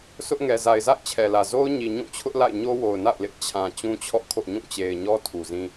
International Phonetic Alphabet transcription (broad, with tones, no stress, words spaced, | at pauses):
sʊ˦ʔŋɛ˨ za˨ɪ̯za̰˦˨ɪ̯t͡ɕʰɛ˨lä˨ zo˦ʊ̯ɲi˨ ɲũ˦˨t͡ɕʰʊ˦ʔla̰˦˨ɪ̯ ɲo˦wo˨ʊ̯na̰˦˨ʊ̯lɪ˦ʔ t͡ɕʰã˨ t͡ɕũ˦t͡ɕʰɔ̰˦˨kʰo̰˦˨ɲũ˦˨ t͡ɕe˨ɪ̯ɲɔ˦ tʰu˨zĩ˦